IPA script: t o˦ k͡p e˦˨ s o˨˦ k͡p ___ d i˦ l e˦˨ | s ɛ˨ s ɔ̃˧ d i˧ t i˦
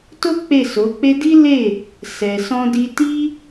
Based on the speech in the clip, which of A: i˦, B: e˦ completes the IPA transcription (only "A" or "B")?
B